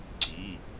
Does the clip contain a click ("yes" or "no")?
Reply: yes